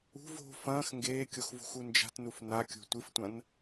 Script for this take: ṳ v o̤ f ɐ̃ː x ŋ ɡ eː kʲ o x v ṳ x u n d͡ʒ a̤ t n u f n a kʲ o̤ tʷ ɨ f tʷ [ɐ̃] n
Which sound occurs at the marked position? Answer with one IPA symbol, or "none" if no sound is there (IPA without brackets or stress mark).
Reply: ɐ̃